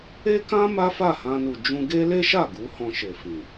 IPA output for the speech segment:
e˦ k ã˦ m a˦ f a˦˨ h ã˧ n u˨ d͡ʒ ũ˧ ɡ e˦ l e˦ ʃ a˦˨ ɡ u˨˦ h ɔ̃˧ ʃ e˨ f ĩ˨

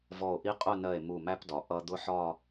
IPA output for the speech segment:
v ɔ˧˩ o̯ ʔ i˥ qʼ ʊ˥˧ n ɜ˧˩ e̯ m u˧˩ m æ˥ p d ɒ˩˧ ʔ ʌ˥ d̪ ʊ˥ ħ ɒ˥˧

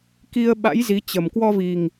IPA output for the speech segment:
k i˧ ə̯ ɓ a̰˧˥ j z i˨˦ t͡ɕ ə˨˩ m k w ɔ˧ v i˨˩ ŋ

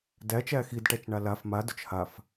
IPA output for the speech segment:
d æ t͡ʃ æ x i d ʈ æ t͡ʃ ɳ a l a f m a d ʊ t͡ʃ h a f

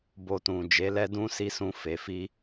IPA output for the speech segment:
b o˧ t ũ˨ d͡ʒ e˨˦ l ɛ˦ d ũ˦ s i˧ s ũ˧ f e˨ f i˧

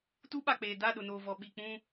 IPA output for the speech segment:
t u˦ ɓ a˨ k͡p eː˨ d a˦˨ ɗ ʊ˨ n oː˨ v ɔ˨ ɓ i˨ k͡p ũ˦

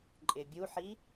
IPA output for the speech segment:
ǃʼ ɪ bʲ u ħ i

